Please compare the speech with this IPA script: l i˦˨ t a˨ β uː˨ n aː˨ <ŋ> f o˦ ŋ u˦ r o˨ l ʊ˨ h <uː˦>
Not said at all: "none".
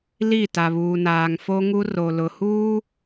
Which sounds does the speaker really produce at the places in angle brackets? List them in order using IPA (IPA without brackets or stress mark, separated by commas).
ŋ, uː˦